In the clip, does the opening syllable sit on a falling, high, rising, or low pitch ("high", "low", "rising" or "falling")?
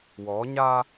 rising